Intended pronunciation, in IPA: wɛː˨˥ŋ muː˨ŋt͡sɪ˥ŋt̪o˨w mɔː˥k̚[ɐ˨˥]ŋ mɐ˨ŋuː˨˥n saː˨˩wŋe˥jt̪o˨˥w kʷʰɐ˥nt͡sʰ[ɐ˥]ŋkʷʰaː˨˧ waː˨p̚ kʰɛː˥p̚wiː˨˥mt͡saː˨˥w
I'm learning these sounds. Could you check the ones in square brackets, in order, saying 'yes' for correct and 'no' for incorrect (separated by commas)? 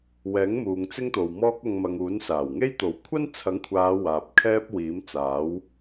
no, no